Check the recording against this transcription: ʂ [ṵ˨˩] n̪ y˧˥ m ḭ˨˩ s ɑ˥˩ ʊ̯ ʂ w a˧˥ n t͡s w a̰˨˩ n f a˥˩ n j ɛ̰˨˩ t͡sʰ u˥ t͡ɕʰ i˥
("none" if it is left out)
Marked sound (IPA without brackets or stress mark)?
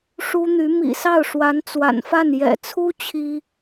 u˥